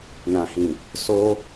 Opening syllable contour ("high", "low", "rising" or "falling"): low